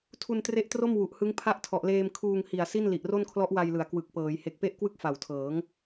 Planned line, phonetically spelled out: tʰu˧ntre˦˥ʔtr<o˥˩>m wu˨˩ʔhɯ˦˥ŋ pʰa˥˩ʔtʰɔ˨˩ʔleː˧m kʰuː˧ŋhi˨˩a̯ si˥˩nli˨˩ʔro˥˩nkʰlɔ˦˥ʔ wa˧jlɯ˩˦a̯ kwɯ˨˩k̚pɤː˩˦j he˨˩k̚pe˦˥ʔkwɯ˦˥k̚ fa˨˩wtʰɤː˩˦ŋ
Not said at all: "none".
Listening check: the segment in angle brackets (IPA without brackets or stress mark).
o˥˩